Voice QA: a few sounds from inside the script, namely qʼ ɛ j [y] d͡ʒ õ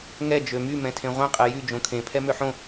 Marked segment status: correct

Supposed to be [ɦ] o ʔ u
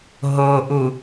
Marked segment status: correct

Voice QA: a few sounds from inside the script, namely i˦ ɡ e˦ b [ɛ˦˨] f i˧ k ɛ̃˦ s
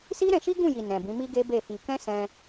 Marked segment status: incorrect: e˦˨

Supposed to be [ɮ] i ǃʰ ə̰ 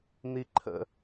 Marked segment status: incorrect: n̪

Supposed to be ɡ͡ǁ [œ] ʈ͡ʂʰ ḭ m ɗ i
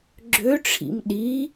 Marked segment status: incorrect: ø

